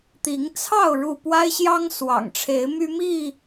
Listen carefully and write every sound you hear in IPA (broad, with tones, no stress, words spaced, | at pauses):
t̪i˨˦ŋt͡sʰɑ˥˨ʊ̯ ɻu˥˨ pwa˦ɪ̯ɕjɑ˦ŋswɑ̰˨˩ŋʈ͡ʂʰe˨˦ɪ̯ my˦mi˥˨